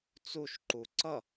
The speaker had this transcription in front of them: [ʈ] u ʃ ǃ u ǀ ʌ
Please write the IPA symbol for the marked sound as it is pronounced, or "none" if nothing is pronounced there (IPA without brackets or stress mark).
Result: t͡s